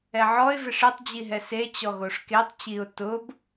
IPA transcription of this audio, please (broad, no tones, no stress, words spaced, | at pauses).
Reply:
ɛʕɔɪ̯ veʂetˤ d͡ʑiɦɛse t͡ɕɔɣoʂketˤ t͡ɕiʊ̯ tʊb